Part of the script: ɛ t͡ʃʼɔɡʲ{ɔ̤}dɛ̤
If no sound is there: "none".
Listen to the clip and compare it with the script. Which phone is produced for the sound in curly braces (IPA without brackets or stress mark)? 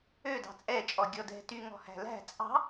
ɔ